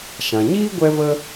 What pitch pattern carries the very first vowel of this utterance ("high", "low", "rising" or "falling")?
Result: low